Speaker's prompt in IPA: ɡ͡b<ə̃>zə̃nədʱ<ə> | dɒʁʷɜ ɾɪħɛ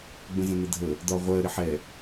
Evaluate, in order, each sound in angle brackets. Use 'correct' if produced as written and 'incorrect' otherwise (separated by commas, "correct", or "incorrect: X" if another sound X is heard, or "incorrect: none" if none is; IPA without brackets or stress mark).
correct, correct